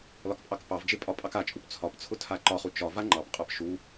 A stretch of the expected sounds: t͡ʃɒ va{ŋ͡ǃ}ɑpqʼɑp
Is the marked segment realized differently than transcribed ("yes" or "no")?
no